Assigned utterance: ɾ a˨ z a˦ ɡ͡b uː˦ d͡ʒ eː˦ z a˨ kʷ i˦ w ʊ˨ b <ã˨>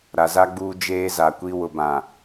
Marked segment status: correct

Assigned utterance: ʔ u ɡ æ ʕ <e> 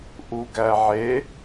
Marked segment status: correct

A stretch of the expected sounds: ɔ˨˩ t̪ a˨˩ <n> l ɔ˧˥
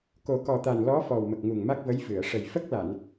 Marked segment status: correct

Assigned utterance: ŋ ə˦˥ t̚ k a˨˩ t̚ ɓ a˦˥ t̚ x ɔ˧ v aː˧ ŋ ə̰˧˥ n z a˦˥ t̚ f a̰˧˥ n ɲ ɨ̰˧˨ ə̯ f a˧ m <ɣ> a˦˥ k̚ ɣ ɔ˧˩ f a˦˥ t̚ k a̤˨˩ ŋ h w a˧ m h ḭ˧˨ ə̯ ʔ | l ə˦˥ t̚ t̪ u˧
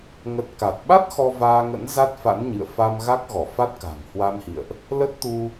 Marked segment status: correct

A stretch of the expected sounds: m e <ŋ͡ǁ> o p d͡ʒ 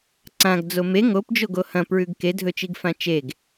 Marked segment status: incorrect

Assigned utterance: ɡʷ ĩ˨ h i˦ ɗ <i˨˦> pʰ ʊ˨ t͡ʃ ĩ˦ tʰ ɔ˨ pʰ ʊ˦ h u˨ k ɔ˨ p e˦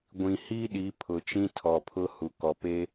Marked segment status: correct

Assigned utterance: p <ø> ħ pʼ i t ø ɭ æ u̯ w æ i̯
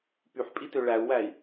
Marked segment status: incorrect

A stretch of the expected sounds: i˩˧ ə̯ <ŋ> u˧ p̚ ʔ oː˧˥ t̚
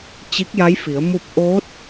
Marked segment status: incorrect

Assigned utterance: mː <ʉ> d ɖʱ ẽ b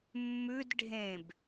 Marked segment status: correct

